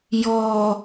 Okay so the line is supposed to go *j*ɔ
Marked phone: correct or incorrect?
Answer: correct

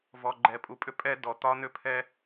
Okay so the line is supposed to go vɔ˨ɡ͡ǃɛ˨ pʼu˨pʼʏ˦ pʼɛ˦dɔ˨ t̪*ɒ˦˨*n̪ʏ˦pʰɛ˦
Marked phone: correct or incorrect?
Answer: incorrect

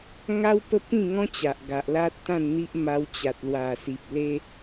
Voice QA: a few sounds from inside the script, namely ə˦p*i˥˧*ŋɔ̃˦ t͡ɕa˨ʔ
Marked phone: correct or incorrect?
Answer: incorrect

